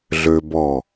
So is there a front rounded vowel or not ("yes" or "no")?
yes